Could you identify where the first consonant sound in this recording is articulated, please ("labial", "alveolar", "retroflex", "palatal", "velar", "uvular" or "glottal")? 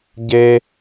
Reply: palatal